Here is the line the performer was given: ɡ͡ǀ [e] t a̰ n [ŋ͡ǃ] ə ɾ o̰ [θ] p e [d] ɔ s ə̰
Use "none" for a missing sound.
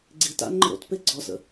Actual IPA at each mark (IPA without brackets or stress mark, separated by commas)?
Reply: i, ŋ͡ǃ, t, ɡ͡ǀ